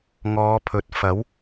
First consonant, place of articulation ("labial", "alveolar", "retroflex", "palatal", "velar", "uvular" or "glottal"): velar